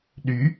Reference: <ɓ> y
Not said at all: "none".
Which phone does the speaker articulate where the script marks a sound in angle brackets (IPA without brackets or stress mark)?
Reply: ɗ